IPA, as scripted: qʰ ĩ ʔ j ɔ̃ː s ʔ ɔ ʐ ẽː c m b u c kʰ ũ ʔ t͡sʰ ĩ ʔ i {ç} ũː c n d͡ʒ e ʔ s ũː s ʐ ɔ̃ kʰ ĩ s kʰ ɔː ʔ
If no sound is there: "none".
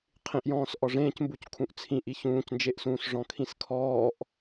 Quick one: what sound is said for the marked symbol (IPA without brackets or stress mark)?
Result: ç